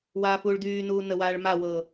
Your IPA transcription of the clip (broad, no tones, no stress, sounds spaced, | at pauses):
w aː f uː ɭ d yː n uː n ə w aː ɭ m a w ɤː